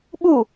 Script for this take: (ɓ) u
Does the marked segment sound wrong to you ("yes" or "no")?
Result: no